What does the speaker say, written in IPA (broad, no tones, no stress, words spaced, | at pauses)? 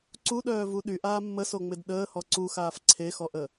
ǀuɗœːvu ɗyʔaː mːəsoŋ͡mɪd ɗəːhɔ ǀuxaːf ǀʰexɔʔə